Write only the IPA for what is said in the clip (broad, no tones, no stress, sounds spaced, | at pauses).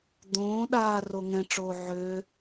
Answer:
d̪ õː ɗ aː r o ŋ ɛ̃ ʈ͡ʂ oː ʕ ø